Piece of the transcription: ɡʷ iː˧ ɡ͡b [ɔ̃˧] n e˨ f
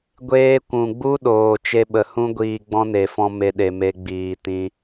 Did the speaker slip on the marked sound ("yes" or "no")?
yes